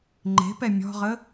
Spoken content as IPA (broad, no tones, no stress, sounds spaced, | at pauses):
ŋ͡ǃ e̤ p ɛ mʲ ɔ̤ ʁ ə